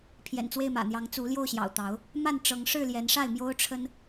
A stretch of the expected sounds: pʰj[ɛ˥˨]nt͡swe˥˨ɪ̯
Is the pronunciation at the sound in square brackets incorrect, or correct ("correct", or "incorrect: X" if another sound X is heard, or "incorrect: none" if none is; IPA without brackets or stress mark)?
incorrect: ɛ̰˨˩